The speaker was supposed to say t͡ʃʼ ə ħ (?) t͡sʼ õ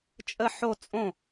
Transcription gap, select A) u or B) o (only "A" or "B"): B